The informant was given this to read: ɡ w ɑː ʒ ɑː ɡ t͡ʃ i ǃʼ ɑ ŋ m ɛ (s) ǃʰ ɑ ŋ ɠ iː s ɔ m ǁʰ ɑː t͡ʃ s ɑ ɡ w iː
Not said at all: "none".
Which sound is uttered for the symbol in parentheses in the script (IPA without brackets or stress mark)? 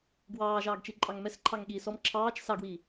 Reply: s